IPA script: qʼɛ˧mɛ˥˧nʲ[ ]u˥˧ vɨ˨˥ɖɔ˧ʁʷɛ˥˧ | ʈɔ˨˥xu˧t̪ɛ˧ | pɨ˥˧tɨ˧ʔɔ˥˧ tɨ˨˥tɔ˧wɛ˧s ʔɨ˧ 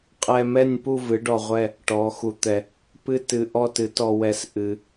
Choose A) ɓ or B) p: B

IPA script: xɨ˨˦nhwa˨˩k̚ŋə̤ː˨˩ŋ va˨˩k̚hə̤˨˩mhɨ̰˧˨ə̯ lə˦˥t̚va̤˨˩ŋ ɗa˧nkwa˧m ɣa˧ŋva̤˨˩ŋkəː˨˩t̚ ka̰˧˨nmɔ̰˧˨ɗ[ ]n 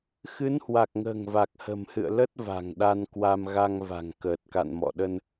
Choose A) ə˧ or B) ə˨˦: A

